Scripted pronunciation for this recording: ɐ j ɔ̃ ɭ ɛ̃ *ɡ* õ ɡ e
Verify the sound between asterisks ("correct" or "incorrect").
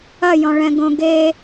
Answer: correct